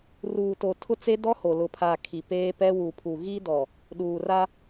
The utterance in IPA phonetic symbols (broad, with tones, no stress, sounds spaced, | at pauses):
r uː˨ t o˨ tʰ ʊ˦ t͡s e˦ d ɔ˦ h o˨ l ʊ˨ pʰ a˨ kʰ i˨ p eː˦ p ɛ˦ w u˨ pʰ u˨ ɣ i˦ d ɔ˨ | ɗ uː˨ r a˦